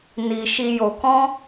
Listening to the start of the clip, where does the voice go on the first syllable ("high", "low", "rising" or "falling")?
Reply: low